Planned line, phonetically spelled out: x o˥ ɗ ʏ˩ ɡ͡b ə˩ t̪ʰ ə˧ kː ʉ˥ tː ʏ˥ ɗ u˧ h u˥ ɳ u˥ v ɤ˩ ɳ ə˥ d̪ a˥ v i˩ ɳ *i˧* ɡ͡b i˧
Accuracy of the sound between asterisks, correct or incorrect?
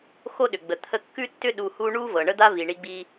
correct